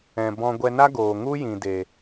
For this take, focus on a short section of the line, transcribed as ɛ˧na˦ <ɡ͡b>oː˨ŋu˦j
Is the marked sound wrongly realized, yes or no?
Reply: yes